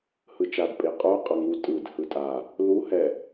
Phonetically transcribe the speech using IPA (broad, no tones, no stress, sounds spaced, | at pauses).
h ɯ t͡ʃ a d pʼ e qʼ u qʼ a ŋ u tʼ ɯ d h ɯ tʼ a | l u h ɛ